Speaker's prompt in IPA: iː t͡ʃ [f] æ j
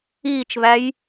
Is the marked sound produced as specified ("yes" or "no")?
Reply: no